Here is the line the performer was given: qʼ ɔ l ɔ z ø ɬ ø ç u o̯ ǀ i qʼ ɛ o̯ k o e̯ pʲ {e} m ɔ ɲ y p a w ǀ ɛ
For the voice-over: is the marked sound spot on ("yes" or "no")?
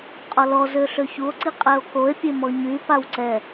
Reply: yes